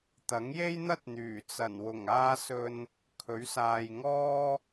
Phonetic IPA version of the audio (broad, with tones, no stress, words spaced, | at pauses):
t̪ɐ˨˥ŋje˥jn̪ɐ˥t̚n̪yː˨˩ t͡sɐ˨˩nwʊ˨˩ŋaː˧sɵ˨n | kʰɵ˨˥ɥsaː˨jŋɔː˥